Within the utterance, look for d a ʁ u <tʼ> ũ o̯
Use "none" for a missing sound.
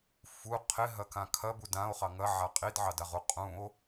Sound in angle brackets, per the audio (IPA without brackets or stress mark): qʼ